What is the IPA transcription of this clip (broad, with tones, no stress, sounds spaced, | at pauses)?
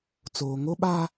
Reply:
t͡s oː˦ ŋ o˦ ɓ a˦